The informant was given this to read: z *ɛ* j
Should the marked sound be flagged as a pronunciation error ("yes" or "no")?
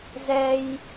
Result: no